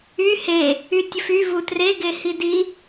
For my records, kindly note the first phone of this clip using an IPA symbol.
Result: y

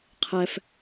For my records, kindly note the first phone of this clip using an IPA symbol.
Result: qʰ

